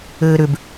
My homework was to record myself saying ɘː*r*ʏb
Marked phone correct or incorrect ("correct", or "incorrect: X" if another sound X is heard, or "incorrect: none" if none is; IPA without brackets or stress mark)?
incorrect: ɾ